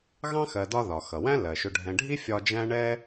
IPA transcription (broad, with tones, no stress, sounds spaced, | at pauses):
ɣ ɑ̃˥ x ɜ˨ d ɒ˦ ð ɒ˩ x ʌ˩ w æ̃˥ l ɜ˩ ʃ ʊ˨ ɖʱ ɛ̃˨ ɖʱ i˥ fʲ ɒ˦ d͡ʒ æ̃˥ ɳ ɛ˥